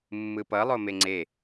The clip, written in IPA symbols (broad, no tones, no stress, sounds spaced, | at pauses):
mː ɯ p ʌ lˠ o m e ŋ͡ǀ e